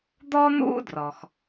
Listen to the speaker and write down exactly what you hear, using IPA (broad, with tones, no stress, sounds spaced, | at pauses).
d̪ ɔ˥ n̪ ṵ˥ d r ɔ˩ x